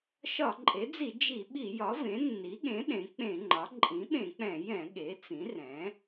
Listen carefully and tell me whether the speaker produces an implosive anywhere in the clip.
yes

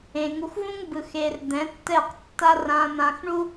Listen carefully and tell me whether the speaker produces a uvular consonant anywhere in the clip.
yes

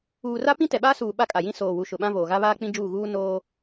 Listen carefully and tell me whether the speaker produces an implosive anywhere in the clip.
yes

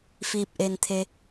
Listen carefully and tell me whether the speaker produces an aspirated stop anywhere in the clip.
yes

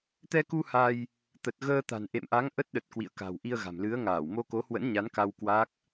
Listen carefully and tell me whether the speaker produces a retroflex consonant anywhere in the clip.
no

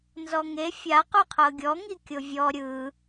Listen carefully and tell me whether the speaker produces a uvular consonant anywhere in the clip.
yes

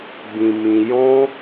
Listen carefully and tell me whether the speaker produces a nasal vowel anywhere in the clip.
yes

